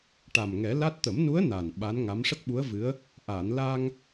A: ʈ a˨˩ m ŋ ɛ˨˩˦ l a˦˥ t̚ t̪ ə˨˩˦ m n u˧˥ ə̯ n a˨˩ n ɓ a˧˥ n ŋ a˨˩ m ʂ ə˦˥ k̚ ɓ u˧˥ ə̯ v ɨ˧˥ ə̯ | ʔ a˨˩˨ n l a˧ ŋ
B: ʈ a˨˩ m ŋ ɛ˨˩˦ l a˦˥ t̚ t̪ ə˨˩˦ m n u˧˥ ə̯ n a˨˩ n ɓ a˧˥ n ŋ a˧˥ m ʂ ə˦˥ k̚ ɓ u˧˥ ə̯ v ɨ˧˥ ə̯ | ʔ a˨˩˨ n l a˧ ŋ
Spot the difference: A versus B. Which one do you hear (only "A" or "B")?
B